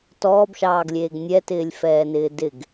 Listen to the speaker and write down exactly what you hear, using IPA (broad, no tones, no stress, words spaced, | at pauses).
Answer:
tɔːbʃɑːɡlʲeːɡ nʲɛtɪːlʲfɛːnɪː dɪɡ